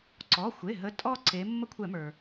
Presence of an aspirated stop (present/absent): present